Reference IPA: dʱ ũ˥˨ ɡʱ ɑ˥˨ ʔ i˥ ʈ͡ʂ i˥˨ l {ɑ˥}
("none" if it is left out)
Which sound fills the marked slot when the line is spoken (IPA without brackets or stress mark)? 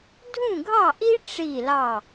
ɑ˥˨